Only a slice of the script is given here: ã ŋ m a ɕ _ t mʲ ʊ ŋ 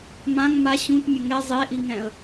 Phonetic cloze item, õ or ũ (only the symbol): ũ